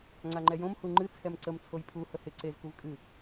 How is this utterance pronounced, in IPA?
ŋ͡ǀ a ŋ͡ǃ ɛ j õ m h u ŋ͡ǃ ɨ t͡sʰ ɛ m ǀ ə m t͡sʰ o j pʰ u h ə h ɪ ǀ e z k u v kʼ ɨ

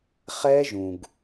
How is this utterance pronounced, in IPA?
χ ɛ˦˥ ʒ ũ˩ ɡ

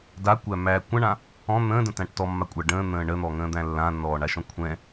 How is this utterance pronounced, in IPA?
d a kʷ æ mː æː kʷ ã ɳ ã | ɔ̃ n̪ ə̃ː d ə̃ t æ̃ ʈ t ɔ mː a kʷʼ a ɖ ə̃ː n̪ ə̃ː ɳ ə n̪ ɔ ŋ ə̃ː d̪ æ̃ lː ã nː ɔː ɳ a ʃ ɔ̃ kʷʰ ɛ̃

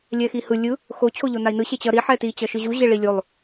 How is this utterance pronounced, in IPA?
lʲ ɛ x i h ɯ lʲ ɯ | x o t͡ɕʰ o ʎ o n a i̯ n ɯ ɕ e t͡ɕ ʌ ɾ i ħ ɛ t i t͡ɕ ʌ ʃ ɯ ʑ u ʑ e ɭ i lʲ o lˠ

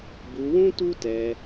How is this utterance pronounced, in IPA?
b u˧ w ũ˦ t u˦ t ɛ˧

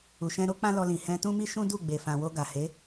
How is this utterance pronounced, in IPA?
u˨ ʃ ɛ̃˧ ɾ o˦ k͡p ã˦ l ɔ˧ l ĩ˨ h ɛ̃˧ t ũ˦ m i˦ ʃ ũ˦ d u˦˨ ɡ͡b e˨ f ã˨ w o˧ ɡ a˨ h e˨˦

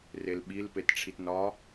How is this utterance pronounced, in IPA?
r e l ɓ i l p e t ʈ͡ʂʰ i t n ɒ

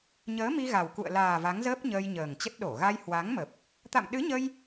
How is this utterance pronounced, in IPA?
ɲ əː˨˦ m i˧ ɣ a˨˩ w k ṵ˧˨ ə̯ l aː˨˩ v a˨˦ ŋ z əː˦˥ p̚ ɲ əː˧ j ɲ əː˨˩ ŋ t͡ɕ ə˦˥ t̚ ɗ o˧˩ ɣ a˧ j h w a˨˦ ŋ m ə˨˩ p̚ | t̪ a̰˧˨ m ɗ ɨ˨˦ ɲ ə˧ j

